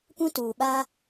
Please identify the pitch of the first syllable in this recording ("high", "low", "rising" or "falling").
high